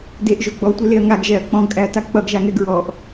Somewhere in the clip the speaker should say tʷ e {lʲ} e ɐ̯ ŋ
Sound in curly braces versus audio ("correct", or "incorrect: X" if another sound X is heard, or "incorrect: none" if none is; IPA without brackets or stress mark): incorrect: l